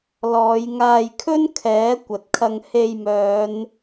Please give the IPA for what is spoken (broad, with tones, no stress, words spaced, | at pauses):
lɔː˨˧jŋaː˧jkʰɵ˥n kʰɛː˨˥ kʷɐ˨t̚kʰɐ˧ŋ he˧jmœː˨˧n